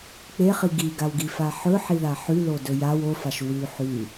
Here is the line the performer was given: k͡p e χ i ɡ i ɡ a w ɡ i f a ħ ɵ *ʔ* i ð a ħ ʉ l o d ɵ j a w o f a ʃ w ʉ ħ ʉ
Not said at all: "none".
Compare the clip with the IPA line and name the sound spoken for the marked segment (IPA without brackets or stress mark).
ħ